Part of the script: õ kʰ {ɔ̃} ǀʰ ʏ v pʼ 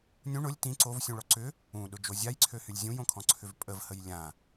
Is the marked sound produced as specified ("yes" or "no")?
yes